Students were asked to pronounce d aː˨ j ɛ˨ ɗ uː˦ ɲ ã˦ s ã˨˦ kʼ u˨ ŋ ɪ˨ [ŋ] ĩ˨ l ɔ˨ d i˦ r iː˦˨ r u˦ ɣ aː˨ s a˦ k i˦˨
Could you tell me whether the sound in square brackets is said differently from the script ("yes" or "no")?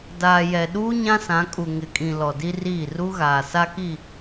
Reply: yes